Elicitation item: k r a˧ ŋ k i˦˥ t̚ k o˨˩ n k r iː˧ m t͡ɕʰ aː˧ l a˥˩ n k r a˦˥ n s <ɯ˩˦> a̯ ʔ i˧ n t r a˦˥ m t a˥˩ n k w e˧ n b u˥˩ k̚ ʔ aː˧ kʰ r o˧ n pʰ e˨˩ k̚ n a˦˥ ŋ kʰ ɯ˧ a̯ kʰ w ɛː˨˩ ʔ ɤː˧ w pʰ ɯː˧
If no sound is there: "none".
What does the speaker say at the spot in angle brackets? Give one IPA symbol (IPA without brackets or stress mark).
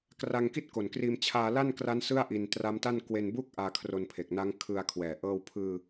ɯ˥˩